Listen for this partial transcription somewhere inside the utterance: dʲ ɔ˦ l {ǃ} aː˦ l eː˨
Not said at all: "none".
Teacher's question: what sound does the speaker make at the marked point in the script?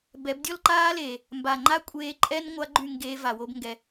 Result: ǃ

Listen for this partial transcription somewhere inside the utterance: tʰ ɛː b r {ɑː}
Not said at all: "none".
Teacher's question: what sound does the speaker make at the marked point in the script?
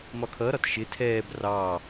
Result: ɑː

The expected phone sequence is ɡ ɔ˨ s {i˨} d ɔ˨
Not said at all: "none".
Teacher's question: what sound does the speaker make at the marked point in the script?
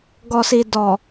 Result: i˨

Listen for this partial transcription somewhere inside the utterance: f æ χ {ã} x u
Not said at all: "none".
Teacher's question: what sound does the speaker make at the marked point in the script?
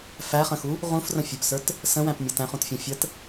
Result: ə̃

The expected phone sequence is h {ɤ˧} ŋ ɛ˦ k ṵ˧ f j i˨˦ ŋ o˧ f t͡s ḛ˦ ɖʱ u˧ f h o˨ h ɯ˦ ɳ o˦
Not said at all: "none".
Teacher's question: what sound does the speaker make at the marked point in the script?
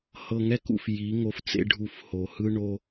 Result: ɤ˧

